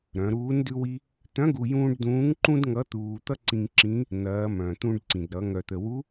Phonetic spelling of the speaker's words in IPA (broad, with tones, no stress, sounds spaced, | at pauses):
ɾ œ̃˩˧ ɾ uː˧˥ n d ʉ˥ w i˥ | t̪ œ̃˧˥ ɡ u˧ j ũː˥ ɖ d ũː˧˥ ŋ ǃ ũ˥ d ŋ ʌ˧˥ t̪ uː˧ t̪ ʌ˥ ǀ ĩ˧ ŋ ǁ ĩ˧˥ | n̪ ɐː˩˧ m œ̃˩ t̪ ũ˧ ɖ ǀ ĩ˩ d ɾ ʌ˩˧ ŋ œ˩ t̪ ə˩ w u˧˥